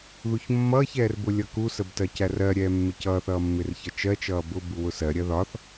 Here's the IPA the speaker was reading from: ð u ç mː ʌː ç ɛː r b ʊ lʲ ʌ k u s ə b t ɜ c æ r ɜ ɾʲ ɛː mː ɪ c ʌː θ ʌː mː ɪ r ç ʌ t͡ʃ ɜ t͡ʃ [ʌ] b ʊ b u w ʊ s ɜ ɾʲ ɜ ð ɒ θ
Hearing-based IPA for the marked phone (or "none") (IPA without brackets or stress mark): ʌː